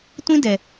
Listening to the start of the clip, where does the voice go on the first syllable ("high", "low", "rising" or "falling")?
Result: high